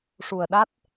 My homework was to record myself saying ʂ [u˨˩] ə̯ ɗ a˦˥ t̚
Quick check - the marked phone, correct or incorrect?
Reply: correct